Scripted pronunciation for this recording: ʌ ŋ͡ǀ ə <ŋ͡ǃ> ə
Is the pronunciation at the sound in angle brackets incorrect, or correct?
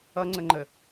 correct